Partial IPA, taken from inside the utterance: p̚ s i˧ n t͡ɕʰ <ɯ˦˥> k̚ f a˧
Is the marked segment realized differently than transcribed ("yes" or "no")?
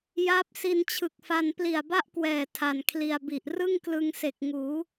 yes